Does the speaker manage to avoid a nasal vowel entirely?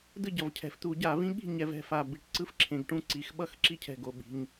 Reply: no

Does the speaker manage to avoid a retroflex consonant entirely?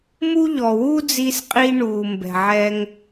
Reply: no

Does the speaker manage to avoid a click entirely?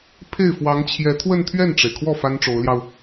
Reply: yes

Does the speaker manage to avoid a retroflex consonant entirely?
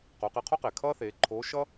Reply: yes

